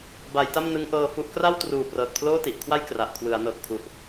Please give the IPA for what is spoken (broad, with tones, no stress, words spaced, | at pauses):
ba˩˦jta˥˩mnɯ˦˥ŋ ʔɤː˧fu˦˥ʔ kra˥˩wtruː˨˩ prɤː˨˩t̚pʰloː˥˩ti˨˩ʔkʰwa˥˩j kra˨˩ʔkʰwɯ˩˦a̯ nɤː˨˩k̚pʰu˨˩ʔ